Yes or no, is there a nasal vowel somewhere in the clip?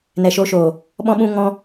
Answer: yes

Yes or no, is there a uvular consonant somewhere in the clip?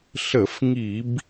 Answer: no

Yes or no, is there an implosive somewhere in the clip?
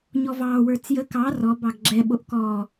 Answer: yes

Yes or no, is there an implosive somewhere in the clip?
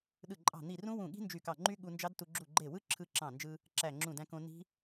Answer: yes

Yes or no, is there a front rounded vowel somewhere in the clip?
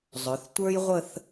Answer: yes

